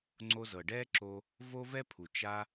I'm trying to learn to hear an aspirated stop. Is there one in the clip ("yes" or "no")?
yes